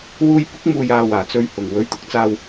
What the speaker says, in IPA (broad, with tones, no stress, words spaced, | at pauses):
wuː˧j pʊ˨˥k̚muː˨jaː˨ waː˨˩t͡sɵ˧ɥhʊ˨˩ŋ wɵ˨˥ɥt̪ʊ˧k̚t͡saː˧w